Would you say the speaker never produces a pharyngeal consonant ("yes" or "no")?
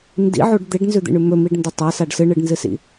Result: no